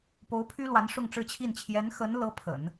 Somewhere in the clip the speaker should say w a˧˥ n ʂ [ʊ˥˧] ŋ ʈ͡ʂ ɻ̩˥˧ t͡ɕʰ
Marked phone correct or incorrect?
correct